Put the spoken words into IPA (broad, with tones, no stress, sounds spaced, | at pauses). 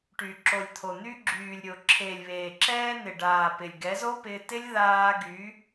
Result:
ʈ y˨ ǁ o˨ lʲ t̪ʰ o˨ n̪ y˧ ɡ͡ǁ yː˨ lʲ ɾʲ o˨ ǁʰ eː˨ lʲ β eː˨ ǁ ɛː˧ n̪ ɪ˨ ɖ aː˨ p ɪ˨ lʲ ɡ ɛ˨˦ z o˦ p ɪː˧ t ɪ˦ lʲ ð aː˧ ɡ y˨˦